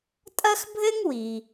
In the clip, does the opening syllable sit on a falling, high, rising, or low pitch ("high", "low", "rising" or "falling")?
high